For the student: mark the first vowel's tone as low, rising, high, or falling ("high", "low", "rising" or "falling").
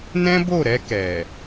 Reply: high